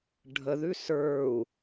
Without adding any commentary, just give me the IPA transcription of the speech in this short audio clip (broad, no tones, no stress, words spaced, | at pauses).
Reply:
ɖʱəðʉ sə˞u̯